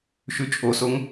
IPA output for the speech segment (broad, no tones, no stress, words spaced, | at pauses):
ʃʉt͡ʃʼosoŋ